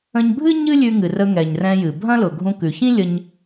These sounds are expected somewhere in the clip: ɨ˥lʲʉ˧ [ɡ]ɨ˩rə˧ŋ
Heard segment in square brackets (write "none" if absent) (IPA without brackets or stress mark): ŋ